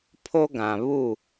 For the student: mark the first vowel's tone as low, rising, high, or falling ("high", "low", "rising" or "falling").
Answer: high